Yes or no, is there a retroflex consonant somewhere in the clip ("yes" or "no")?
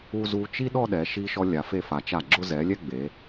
no